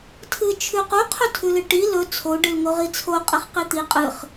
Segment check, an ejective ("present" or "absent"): present